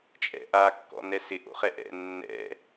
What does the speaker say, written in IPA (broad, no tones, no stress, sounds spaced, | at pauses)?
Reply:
t͡ʃʼ ɛ̰ ʔ a kː ɔ̰ n ɛ s ɪ ʔ o̰ χ ɛ ʔ ɛ̰ nː ɛ̰